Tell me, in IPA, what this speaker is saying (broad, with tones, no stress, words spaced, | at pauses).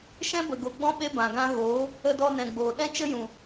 ʃɛ̃˦bə˨ɡo˨ɡ͡bɔ̃˦ ɓe˦bã˨ɡã˦ ɣoː˨˦ | ə˧dɔ˧nɛ̃˨ɡ͡boː˨ ɗɛ̃˦t͡ʃə˦jũ˨